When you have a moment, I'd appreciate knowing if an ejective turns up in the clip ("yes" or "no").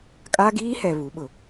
yes